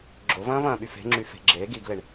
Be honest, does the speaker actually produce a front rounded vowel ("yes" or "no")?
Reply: yes